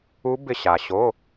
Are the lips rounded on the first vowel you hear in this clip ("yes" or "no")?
yes